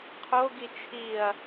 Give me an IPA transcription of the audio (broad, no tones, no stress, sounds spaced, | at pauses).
qʰ o ɡ i t͡ʃʰ i ɐ̯